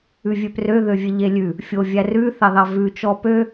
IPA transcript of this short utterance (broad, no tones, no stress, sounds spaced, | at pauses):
ʉ vʲ ø p r ø ð ø vʲ e ʎ e lʲ ʉ | fʲ o vʲ æ r ʉ θ ɑ ð ɑ v ʉ t͡ʃ ɔ p ø